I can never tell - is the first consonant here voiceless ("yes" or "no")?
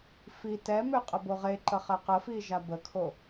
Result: yes